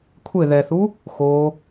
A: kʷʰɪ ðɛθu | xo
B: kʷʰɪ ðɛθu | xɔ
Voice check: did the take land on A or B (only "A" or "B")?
A